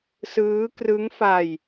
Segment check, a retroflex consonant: absent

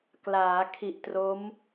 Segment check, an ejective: absent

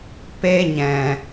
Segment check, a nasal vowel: present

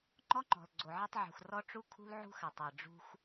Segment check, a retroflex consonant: present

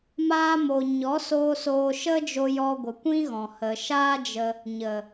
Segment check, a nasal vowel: present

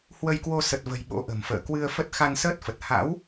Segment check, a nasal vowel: absent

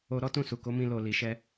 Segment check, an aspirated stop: absent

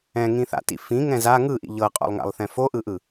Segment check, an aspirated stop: absent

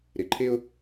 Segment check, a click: present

